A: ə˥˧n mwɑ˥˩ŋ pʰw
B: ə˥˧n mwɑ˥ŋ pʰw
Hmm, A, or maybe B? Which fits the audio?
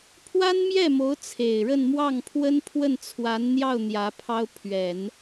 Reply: A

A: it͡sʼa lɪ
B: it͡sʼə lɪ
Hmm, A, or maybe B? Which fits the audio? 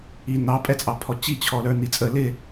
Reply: B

